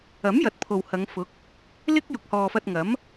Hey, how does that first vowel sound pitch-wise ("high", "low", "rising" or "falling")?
rising